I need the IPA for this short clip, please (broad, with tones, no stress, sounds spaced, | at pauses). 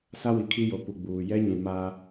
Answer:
s a˦ w i˨ kʰ i˦ j o˨ p u˨ ɡ͡b uː˨ j ɛ˦ ɲ ĩ˨ m a˦